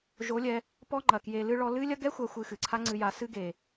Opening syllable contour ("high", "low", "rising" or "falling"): rising